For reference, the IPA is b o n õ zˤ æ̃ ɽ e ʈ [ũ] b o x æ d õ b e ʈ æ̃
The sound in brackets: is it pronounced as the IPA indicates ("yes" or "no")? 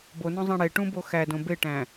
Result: yes